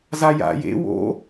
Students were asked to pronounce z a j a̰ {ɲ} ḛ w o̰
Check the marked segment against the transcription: incorrect: j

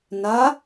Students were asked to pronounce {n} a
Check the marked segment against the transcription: correct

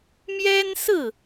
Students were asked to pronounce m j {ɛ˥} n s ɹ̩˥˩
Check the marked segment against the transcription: correct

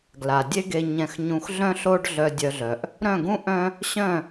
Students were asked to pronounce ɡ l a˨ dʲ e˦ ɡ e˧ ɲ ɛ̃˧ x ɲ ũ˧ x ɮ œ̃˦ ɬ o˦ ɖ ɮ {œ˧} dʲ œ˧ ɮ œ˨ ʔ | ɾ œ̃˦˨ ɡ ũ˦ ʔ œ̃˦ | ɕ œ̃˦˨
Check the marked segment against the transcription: correct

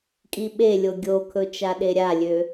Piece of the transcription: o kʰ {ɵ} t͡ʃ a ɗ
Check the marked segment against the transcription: correct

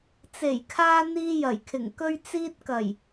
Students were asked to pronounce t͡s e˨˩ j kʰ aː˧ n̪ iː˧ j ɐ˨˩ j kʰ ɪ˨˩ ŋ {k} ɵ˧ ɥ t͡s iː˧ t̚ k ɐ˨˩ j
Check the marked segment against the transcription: correct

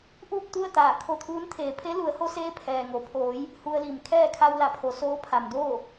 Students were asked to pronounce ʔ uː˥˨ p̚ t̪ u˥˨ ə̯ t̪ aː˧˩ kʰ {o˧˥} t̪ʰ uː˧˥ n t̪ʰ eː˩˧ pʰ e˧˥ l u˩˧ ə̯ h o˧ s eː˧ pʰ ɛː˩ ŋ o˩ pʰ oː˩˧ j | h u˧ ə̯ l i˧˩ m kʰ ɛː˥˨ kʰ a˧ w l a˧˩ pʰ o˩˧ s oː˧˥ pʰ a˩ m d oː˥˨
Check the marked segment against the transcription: incorrect: o˧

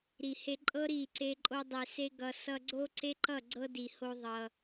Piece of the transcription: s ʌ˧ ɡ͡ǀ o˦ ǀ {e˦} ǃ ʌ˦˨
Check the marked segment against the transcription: correct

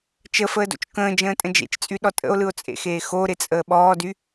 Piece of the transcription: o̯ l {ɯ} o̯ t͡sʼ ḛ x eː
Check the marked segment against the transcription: correct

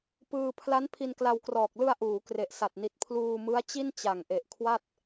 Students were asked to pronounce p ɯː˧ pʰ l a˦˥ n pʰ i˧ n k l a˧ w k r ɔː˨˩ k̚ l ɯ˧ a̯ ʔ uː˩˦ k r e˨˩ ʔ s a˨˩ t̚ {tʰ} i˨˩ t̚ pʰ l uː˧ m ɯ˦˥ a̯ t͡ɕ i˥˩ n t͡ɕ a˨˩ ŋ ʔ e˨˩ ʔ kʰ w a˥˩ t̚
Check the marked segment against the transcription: incorrect: n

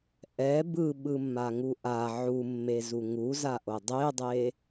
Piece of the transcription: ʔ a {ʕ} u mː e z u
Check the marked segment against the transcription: correct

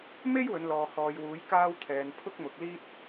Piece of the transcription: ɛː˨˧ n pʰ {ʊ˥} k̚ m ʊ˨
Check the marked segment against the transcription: correct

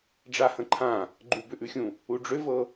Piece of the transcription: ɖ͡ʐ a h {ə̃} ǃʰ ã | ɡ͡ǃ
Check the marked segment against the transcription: correct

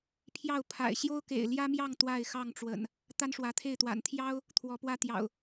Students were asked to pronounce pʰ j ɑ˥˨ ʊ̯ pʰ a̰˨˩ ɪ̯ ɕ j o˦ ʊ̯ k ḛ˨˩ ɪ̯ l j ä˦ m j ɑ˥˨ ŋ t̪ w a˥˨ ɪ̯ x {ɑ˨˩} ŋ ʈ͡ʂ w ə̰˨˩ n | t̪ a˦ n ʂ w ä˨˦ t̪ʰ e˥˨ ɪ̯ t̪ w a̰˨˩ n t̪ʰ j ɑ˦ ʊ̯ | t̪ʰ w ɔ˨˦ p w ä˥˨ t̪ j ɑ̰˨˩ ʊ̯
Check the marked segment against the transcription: incorrect: ɑ˥˨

